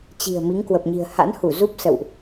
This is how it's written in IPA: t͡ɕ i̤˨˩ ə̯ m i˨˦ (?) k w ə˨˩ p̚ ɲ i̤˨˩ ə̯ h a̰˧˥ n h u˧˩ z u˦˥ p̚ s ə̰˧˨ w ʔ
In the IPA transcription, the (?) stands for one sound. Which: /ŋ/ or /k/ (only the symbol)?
ŋ